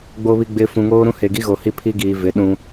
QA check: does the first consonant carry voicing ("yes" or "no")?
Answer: yes